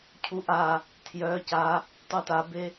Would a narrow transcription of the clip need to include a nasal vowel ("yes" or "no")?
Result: no